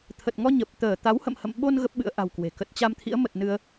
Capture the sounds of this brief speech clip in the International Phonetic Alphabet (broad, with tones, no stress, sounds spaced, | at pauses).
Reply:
t̪ʰ ə˨˩ t̚ ŋ ɔ˧ ɲ ə˨˩ p̚ t̪ əː˧˩ t̪ a˨˦ w h ə̰˧˨ m h ə̰˧˨ m ɓ o˧ n ɣ ə˦˥ p̚ ɓ ɨ̰˧˥ ə̯ ʔ a̤˨˩ w k w e̤˨˩ k ə˦˥ t̚ t͡ɕ a˧ m t̪ʰ ḭ˧˥ ə̯ m ə˨˩ t̚ n ɨ˧ ə̯